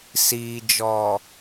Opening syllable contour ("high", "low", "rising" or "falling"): low